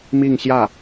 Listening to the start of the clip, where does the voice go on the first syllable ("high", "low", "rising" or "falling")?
falling